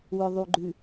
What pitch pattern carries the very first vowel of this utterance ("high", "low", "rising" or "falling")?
low